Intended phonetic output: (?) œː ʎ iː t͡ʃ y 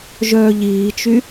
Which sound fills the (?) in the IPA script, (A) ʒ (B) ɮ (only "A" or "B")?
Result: A